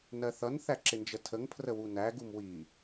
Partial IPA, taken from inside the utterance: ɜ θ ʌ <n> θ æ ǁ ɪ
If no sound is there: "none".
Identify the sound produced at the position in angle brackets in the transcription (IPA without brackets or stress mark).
n